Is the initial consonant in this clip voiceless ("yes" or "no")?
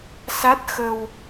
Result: yes